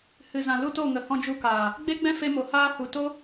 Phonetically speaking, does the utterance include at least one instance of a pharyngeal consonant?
no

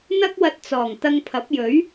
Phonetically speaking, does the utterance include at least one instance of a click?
no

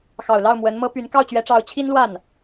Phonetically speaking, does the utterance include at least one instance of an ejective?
no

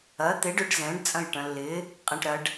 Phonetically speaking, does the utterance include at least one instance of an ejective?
yes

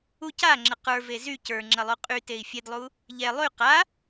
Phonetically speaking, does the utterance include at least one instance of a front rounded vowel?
yes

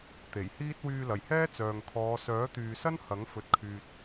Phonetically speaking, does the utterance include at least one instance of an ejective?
no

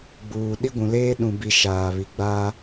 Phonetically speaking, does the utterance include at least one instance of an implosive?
yes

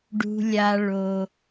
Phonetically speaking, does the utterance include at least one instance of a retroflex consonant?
yes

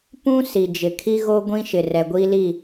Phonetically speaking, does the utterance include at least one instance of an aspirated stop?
yes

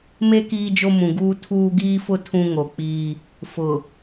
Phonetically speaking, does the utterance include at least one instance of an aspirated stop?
yes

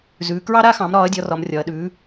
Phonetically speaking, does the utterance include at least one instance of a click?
no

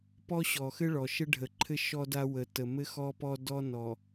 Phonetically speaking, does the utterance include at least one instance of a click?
yes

